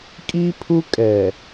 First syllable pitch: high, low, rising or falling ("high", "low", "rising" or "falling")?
high